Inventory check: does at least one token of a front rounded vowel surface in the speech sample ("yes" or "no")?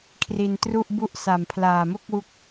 no